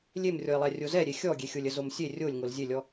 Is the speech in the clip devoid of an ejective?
yes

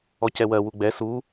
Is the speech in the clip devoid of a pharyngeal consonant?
yes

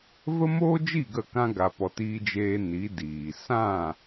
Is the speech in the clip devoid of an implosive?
yes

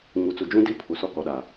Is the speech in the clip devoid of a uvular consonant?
yes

